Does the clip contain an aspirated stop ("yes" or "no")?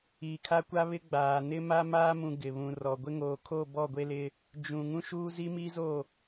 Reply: yes